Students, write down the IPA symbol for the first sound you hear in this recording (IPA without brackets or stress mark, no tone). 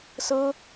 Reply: s